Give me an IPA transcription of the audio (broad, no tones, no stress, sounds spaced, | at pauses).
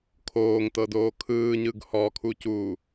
kʰ oː ŋ t ɤ d oː kʰ ɯː ɲ ɯ ɡ h ɔ kʰ u c uː